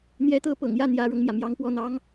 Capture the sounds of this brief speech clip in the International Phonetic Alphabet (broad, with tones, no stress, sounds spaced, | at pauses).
n̪ j ɛ˧˥ t̪ ɤ˧˥ p ɤ̰˨˩ ŋ j ä˥˩ n̪ j ä˧˥ ɻ ɤ˧ ŋ m j ä˩ m j ɑ˧˥ ŋ p w ɔ˥˩ n̪ ɑ˥ ŋ